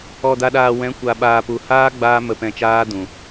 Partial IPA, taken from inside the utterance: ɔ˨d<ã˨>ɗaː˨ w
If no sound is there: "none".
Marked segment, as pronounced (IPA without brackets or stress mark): a˨